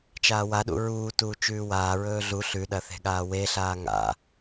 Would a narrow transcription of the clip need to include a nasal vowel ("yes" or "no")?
no